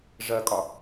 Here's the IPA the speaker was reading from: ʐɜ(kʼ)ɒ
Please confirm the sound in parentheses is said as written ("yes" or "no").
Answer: yes